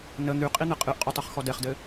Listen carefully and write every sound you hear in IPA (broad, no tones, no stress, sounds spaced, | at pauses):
n ə n̪ y qʼ i n̪ ɘ qʼ ɨ ʔ qʼ u tˤ ɨ χ x ɔ d ɛ χ d ɘ